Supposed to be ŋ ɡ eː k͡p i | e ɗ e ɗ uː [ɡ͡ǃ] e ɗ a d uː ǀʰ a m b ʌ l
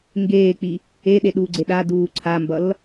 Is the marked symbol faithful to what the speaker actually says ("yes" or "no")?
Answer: no